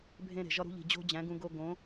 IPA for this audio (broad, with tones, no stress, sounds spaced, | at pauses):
bʱ ẽ˦ ɾ e̤˨ ʒ ɒ˧ ɾ ṳ˧ ʎ i̤˨ d͡ʑ o̤˧ d͡ʑ æ̃˨˦ ɡ ũ˧ ɡ o˧ ɡ õ˨˦